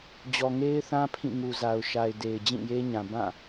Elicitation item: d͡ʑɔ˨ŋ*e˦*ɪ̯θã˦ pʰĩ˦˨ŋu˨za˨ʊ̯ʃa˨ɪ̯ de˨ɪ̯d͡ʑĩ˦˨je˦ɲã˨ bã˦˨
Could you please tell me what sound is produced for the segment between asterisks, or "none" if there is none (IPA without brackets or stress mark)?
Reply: e˦